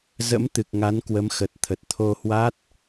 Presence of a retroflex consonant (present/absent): absent